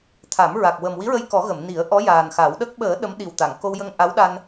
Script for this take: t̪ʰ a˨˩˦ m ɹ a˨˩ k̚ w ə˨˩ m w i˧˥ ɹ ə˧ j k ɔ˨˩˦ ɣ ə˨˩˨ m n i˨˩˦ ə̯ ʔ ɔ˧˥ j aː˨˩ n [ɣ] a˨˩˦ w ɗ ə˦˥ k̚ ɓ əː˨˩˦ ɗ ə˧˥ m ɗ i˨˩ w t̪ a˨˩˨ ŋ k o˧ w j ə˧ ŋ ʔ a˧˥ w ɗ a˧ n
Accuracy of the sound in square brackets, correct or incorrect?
incorrect